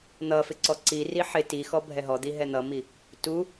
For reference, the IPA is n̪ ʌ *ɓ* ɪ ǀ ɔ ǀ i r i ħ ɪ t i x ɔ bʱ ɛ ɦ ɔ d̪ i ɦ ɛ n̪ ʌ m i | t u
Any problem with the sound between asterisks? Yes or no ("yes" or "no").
yes